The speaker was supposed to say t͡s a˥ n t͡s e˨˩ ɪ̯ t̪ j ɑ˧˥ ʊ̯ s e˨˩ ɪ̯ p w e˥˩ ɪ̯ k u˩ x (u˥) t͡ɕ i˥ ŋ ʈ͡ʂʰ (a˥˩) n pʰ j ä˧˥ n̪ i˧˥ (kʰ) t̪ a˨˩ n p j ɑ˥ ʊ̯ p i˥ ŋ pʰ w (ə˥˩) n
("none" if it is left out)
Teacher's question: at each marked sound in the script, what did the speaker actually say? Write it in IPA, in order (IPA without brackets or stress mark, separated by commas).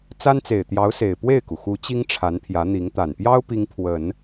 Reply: u˧˥, a˧˥, ŋ, ə˨˩˦